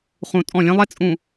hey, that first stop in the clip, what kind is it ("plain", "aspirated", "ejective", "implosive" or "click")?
ejective